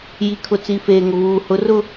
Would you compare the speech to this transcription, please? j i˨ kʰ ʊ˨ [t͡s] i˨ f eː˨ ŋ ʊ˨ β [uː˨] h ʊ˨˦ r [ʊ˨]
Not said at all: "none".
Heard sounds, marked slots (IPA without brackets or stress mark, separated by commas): t͡s, uː˨, ʊ˦˨